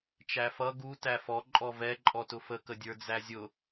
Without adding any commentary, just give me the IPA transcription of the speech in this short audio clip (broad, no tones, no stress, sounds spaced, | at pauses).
t͡ʃ æ f ʌ ɡ u t æ f ɔ ǃʼ ɔ v ɛ ǃʼ ɔ t ʊ f ə k ə dʲ ə˞ d͡z æ zʲ ʊ